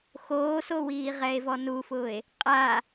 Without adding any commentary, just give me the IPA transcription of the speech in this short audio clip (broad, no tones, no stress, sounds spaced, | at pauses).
x oː s o w iː ʁ ɛ e̯ v ɔ n u f ʊː e̯ | qʼ a